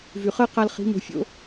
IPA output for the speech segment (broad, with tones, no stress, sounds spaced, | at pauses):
v y˨ χ əː˦ q a˧ l χ i̤˨˦ m o̤˧ fʲ o̰˦